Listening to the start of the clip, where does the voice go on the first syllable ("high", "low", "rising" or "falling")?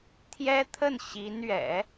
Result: high